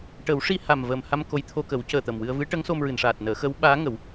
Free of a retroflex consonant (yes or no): no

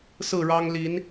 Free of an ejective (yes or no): yes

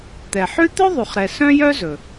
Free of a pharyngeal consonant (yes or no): no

